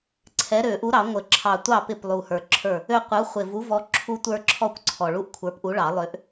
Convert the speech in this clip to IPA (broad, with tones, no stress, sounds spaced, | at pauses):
ǀʰ ɛ˨˥ ɾ ø˨˩˦ ʔ u˨˥ ɾ ɑ˨˩˦ ŋʷ ə˨˩˦ ǁʰ ɑ˨˩ tʷ ɑ˥˩ p ɪ˥˩ p lˠ u˨˩ h ə˞˨˩ ǁʰ ə˞˥˩ | ø˦ qʷ ə˨˥ u̯ χʷ ɪ˨˩ v u˨˥ v ɔ˨˥ ǁʰ u˦ tʷ ə˞˦ ǁʰ ɔ˥˩ kʷ ǀʰ ɔ˨˩ ɭ u˦ ʔ kʷʰ ə˞˨˥ p ʔ u˨˥ ɭ ɑ˨˩˦ lˠ ø˨˥ ʔ